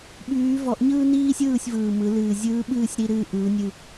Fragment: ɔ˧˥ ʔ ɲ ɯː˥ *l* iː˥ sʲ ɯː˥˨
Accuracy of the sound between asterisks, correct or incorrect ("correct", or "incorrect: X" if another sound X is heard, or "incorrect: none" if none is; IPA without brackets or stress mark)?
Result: incorrect: n